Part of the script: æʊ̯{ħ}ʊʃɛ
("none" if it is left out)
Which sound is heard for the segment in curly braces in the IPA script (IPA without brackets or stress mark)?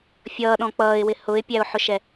ħ